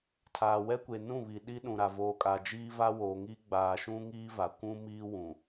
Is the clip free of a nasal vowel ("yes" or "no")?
no